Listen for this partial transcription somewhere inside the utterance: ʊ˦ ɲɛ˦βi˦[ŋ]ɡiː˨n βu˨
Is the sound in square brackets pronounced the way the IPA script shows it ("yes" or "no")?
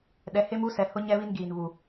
no